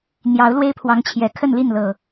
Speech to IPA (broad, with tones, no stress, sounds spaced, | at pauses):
n̪ j ɑ˨˦ ʊ̯ l w e˦ ɪ̯ pʰ w ɑ˨˦ ŋ t͡ɕʰ j ɛ˨˩ kʰ ə˥˨ n l i˥˨ n l ɤ˨˩